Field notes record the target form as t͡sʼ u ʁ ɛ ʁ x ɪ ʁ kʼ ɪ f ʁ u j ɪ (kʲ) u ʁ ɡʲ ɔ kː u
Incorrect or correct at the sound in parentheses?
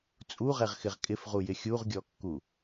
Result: incorrect: xʲ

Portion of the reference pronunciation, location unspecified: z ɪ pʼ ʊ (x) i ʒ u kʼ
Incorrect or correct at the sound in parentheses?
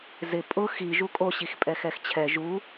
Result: correct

